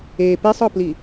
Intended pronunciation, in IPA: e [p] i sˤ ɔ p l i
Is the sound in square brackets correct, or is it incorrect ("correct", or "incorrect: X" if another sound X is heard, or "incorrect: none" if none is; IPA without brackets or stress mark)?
correct